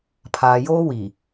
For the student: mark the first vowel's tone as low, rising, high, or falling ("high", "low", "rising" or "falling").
low